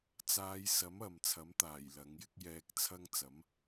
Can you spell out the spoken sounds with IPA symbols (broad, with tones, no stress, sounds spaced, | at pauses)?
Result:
t͡s aː˨˧ j s ɐ˨˥ m ɐ˨˧ m t͡sʰ ɐ˨˥ m t̪ aː˨˩ j l ɐ˨˥ ŋ j ɪ˥ k̚ j ɛː˧ k̚ t͡sʰ ɐ˥ ŋ t͡s ɐ˨˥ m